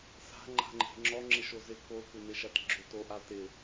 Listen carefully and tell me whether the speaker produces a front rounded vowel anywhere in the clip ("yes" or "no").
yes